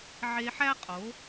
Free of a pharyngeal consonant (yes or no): no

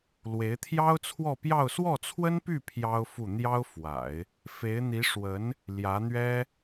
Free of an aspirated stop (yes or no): no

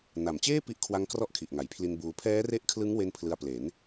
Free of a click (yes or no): yes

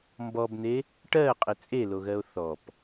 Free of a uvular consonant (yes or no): no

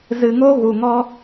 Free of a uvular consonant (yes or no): yes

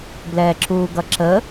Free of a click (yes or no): no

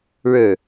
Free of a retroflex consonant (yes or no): no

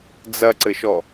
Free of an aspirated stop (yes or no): yes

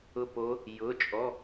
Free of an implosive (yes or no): yes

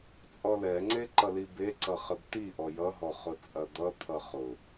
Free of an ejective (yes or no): no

